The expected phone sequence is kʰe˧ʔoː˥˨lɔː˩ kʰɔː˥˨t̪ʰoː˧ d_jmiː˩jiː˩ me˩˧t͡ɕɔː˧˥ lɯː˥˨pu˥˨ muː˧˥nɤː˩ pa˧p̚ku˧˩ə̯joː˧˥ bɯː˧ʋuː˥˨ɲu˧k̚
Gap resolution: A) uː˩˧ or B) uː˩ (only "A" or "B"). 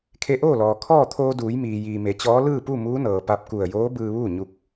A